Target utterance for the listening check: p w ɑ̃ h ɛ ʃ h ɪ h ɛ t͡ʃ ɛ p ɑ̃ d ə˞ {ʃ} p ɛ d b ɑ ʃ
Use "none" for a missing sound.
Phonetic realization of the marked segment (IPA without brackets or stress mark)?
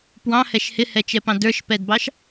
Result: ʃ